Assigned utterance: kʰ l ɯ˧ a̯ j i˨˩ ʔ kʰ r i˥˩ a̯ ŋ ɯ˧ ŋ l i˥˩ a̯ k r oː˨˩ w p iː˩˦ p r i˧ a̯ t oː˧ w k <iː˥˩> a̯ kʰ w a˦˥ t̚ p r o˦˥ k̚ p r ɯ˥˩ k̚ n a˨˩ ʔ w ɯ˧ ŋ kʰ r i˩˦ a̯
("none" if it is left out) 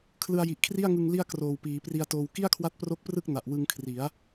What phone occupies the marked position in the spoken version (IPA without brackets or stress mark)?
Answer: i˥˩